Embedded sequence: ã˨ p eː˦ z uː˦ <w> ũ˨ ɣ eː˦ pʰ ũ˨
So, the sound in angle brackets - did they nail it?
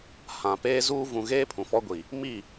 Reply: no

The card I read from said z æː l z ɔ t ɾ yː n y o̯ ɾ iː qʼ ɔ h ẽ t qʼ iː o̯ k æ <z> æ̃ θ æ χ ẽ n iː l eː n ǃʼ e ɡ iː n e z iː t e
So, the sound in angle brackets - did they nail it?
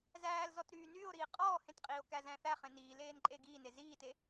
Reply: yes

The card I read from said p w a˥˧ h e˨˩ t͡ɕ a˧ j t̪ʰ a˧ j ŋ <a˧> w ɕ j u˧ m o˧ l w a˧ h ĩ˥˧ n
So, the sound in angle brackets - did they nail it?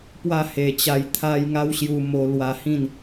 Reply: no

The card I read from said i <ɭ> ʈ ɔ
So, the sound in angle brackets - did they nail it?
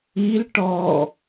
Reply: no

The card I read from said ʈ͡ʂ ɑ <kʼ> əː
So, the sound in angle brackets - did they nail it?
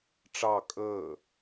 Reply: yes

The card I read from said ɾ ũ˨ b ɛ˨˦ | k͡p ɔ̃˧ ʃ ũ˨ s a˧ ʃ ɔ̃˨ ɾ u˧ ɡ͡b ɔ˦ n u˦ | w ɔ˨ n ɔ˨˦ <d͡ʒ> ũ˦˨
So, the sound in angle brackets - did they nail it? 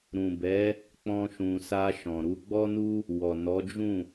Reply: yes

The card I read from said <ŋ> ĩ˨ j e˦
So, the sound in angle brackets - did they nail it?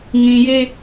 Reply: yes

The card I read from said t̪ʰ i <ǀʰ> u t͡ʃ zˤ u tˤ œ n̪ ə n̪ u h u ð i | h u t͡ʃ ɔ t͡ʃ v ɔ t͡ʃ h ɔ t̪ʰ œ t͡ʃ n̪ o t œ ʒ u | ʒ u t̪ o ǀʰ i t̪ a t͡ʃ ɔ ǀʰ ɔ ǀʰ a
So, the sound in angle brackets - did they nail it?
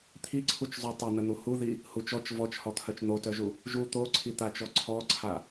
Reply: yes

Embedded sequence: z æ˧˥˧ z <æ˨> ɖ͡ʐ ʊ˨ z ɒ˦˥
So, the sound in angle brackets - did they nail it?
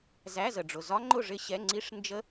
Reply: no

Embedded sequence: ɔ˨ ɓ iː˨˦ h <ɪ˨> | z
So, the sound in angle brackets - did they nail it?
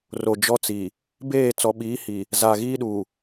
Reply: no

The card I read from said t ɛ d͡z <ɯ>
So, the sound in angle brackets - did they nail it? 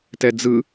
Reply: yes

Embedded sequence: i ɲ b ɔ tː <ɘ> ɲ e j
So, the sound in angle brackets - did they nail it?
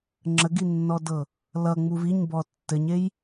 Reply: yes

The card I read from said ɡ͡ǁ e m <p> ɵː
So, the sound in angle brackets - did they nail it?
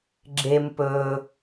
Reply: yes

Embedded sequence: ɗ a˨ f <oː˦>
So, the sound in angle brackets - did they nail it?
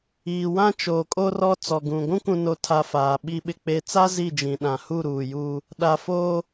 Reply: yes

